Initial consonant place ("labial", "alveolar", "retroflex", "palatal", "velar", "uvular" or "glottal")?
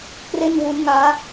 velar